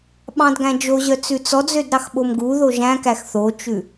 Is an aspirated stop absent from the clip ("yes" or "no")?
yes